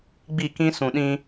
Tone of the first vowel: falling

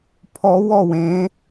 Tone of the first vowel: rising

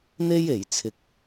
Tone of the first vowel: high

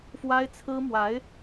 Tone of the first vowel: high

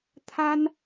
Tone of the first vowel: high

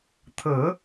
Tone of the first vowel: low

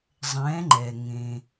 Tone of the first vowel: rising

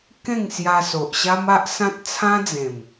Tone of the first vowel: falling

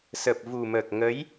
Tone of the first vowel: low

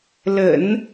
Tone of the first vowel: low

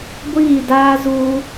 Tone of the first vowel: falling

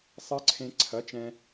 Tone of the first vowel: high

